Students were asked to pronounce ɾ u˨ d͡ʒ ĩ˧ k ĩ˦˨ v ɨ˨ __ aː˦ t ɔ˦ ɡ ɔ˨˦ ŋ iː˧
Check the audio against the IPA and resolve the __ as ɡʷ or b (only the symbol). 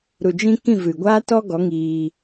ɡʷ